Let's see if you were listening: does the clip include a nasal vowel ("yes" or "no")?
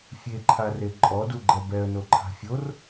no